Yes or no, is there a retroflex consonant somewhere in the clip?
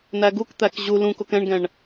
yes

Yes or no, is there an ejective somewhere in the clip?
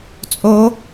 yes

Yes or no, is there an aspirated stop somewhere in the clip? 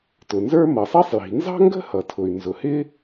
yes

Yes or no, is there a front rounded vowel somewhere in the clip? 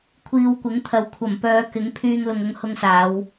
yes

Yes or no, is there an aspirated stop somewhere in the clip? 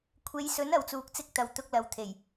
yes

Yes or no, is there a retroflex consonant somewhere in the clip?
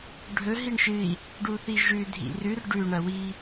yes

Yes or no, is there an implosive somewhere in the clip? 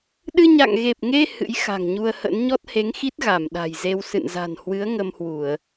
yes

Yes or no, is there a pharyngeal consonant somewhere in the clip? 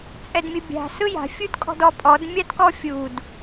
no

